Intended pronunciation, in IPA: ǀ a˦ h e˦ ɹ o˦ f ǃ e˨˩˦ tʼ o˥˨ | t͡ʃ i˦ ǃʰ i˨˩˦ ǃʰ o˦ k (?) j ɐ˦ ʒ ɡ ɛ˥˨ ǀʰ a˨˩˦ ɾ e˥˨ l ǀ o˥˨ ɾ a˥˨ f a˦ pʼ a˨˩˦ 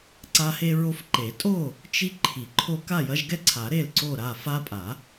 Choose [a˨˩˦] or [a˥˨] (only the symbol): a˥˨